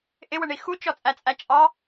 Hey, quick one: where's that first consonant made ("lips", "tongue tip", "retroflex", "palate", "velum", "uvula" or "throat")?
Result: throat